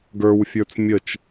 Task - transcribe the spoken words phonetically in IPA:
ɡə˞wfʲə˞t͡s mʲət͡ʃ

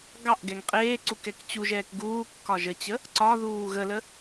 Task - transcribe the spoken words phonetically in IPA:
ɡɑʔɡɛŋ qʼeːǀu kɛkt͡ɕuʒɛːk ɡuːkːɒ ʒət͡ɕə | ǀɒðuː ɣələ

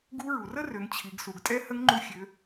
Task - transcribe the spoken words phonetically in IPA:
ɡu˧˥ɹu˩rə˥rø˩˧ŋ t͡ɕʰi˩˧ɡ su˩ɡtʼɛ˧˥ hə˧˥ŋŋ͡ǃu˧ xʲø˩˧

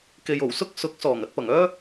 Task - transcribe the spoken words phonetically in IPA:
ke˨jo˨˩w sʊ˥k̚ sʊ˨˥k̚ sɔː˨˩ŋɐ˧t̚pɐ˨˩ŋœː˥

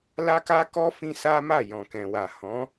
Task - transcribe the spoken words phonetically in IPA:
la˦ka˦kɔ˦ fĩ˦sa˦ma˦˨ jɔ̃˨kɛ̃˨wa˨ hɔ̃˨˦

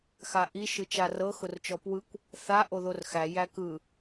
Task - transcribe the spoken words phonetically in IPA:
xaʔiʃɯ t͡ʃarɤxʊrt͡ʃɔ pwɯkʷ | θa ʔoðorxæ jækɯ

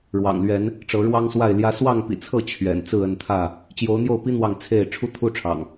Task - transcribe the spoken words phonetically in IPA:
ɻwɑ̰˨˩ŋlɥɛ˨˦n | ʈ͡ʂɤ˨˦ɻwɑ˦ŋswa˥˨ɪ̯ljä˦ swɑ˥˨ŋpḭ˨˩t͡sʰɤ˥˨ t͡ɕʰɥɛ̰˨˩n t͡sɹ̩˥˨ə˥˨nt̪ʰä˥˨ | t͡ɕjo˨˦ʊ̯n̪jo˥˨ʊ̯pi˦ n̪wɑ˥˨ŋt͡sʰe˥˨ɪ̯ ʈ͡ʂʰu˦t̪ʰu˦ʈ͡ʂʰɑ̰˨˩ŋ

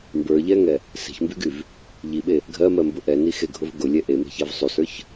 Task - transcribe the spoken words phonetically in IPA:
mbə˞ʎɛŋɛ | se̤çmbyɡyv | ʎiɓe | ɡʱɜmɜmbʊ ʔɛnixeɡʱʊv ɡʊlʲɛ ʔeme̤çɛv sˤysə˞ç

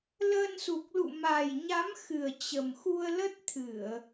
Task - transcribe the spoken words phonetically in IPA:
ləː˧nsu˨˩k̚lṵ˧˨ ma˨˩jɲa˨˦mxɨ˨˩ə̯ t͡ɕə˨˩mxu˧ə̯lə˦˥t̚ t̪ʰɨ˧˩˨ə̯

